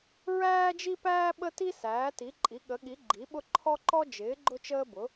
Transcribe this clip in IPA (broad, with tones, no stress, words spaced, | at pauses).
ɹæː˥d͡ʒi˥pæː˥ ɓə˥ti˥ sæː˨˥ti˨˥ǃʼi˨˥ ɠə˨˥ɠi˨˥ ɡ͡ǃi˨˥ɓʊ˥ ǃʰɔ˥ǃɔ˥d͡ʒɪː˨˥ ɡ͡ǃʊ˥t͡ʃəː˥bʊ˨˥